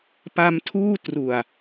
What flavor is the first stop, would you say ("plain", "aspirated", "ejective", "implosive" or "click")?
plain